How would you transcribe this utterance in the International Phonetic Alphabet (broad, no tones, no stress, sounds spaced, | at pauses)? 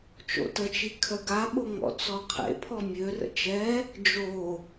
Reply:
t͡ʃ o̰ t ə t͡ʃ i kʰ œ ɡ a ɓ o ŋ ɔ̰ t͡s ɔ qʰ ḛ pʰ ɔ mʲ ø r ə̰ t͡ʃ ɛ | d͡ʒ o